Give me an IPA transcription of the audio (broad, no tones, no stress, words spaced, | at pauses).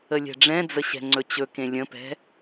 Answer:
əlʲɛ̤ɖ͡ʐɛ̃d͡zə ɕɛ̤ŋ͡ǀɵt͡ɕɵkẽ lʲə̃pɛ̤